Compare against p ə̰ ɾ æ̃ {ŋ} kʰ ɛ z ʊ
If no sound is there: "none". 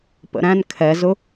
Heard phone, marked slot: n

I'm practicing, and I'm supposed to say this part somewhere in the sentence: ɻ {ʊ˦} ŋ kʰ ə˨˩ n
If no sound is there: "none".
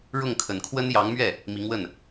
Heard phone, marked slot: ʊ˥˩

